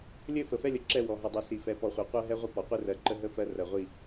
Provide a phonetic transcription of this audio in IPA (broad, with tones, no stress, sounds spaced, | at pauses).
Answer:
lʲ ɘ˦˨ f ə˨ f ɛ˦ lʲ ə˨ ǁ ɛ˦˨ w ɔ˨ ɦ ə˨ dˤ i˨ s i˨ f ɛ˨ p ɔ˨ χʷ e˨ qʷ ɜ˦ ɦ ɛ˦ ʁʷ ə˦ p ɔ˨ qʷ e˦ r ɜ˨ ǃ ə˦ ɦ ə˦ f ɜ˦ r ɜ˨ ʁʷ i˦˨